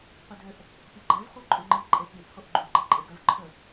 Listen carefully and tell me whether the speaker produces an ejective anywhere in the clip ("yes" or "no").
yes